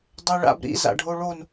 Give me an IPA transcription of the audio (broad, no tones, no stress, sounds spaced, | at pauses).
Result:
dˤ ɛ ɭ a̰ b ɾ ḭ z a̰ ɖʱ o ɭ o n